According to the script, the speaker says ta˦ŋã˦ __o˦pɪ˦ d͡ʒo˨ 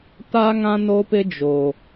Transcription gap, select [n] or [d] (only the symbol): n